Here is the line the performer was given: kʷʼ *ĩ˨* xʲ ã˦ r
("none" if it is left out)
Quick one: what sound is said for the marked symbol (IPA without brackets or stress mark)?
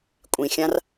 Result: ĩ˨